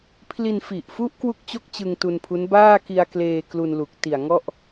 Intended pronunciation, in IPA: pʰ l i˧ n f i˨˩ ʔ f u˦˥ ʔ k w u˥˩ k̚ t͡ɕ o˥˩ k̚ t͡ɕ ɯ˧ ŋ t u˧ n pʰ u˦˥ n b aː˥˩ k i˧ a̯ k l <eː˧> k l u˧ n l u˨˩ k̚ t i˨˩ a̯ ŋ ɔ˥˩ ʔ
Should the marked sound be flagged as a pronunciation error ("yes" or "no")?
no